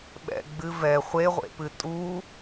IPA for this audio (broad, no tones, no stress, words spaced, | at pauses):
ɓɛ̰ ɡ͡bɨvɛ χʷeʁʷḛpɨ tʼu